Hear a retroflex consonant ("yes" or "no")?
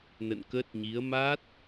no